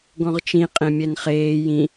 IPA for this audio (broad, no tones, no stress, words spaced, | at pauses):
ɡɔ̃ʁt͡ʃĩ qʼẽmʲɛnχeː jĩ